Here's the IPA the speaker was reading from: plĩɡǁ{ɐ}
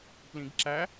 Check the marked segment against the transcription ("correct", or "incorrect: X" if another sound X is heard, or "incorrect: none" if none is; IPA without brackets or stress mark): incorrect: æ